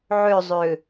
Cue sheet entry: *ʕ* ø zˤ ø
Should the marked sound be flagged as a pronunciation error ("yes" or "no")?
no